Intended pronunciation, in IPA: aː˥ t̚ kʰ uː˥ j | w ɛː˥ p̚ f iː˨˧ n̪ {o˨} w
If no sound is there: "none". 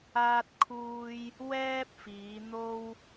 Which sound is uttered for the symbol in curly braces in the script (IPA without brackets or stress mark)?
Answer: o˥